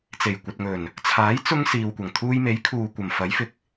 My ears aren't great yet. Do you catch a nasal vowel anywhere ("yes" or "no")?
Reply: no